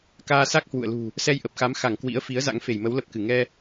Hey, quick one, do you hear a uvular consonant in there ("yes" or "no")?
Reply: no